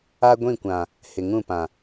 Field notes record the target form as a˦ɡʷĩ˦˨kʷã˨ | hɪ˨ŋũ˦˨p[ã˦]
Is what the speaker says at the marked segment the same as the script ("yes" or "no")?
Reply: no